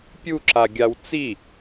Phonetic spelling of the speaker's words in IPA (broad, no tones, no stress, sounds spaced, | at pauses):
pʲ u ǁ a ɡʲ a w t͡s i